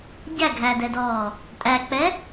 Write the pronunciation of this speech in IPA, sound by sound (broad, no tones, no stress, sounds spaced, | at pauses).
ɟ æ ɡʱ æ d ɛ d ɔː | tʼ æ k͡p ɛ